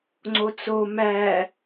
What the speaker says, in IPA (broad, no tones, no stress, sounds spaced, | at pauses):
ŋ͡ǀ o t͡s o m æ